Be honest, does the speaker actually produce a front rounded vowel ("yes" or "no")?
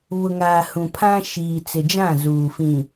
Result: no